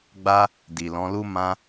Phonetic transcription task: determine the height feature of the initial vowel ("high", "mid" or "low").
low